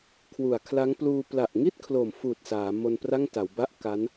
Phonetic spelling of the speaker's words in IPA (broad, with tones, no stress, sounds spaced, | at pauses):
kʰ w u˨˩ a̯ kʰ l a˦˥ ŋ p l uː˧ p l a˨˩ ʔ ŋ i˥˩ t̚ kʰ l o˨˩ m f uː˨˩ t̚ s aː˩˦ m o˧ n p r a˥˩ ŋ t a˩˦ w b a˥˩ ʔ k a˦˥ n